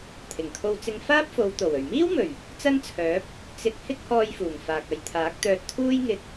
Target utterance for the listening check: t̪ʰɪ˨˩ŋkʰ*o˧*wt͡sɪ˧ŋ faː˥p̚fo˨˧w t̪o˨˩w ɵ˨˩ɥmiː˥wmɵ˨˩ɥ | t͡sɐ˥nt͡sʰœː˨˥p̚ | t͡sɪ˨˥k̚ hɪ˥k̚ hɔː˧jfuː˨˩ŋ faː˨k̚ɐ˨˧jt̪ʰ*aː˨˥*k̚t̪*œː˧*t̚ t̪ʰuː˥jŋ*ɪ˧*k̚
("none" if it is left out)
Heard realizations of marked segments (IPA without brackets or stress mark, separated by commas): o˧, aː˨˥, œː˧, ɪ˧